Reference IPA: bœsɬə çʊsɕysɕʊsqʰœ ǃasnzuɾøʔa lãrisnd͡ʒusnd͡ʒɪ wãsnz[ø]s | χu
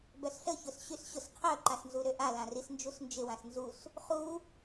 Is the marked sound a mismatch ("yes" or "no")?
yes